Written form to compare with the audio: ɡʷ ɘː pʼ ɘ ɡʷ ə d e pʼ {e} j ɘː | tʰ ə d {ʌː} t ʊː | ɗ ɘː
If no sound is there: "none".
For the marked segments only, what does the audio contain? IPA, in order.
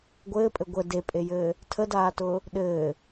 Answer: e, aː

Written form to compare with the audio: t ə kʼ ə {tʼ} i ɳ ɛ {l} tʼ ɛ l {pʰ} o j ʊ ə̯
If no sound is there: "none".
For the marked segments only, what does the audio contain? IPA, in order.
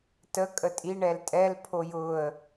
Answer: tʼ, l, pʰ

